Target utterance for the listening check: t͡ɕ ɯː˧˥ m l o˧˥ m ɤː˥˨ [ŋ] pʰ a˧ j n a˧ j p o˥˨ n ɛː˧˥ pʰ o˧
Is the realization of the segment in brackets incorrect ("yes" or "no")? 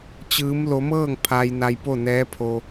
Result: no